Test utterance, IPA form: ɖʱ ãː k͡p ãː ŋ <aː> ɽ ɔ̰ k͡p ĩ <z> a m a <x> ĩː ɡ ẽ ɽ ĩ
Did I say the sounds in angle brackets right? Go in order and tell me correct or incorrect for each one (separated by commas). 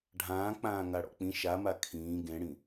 incorrect, incorrect, incorrect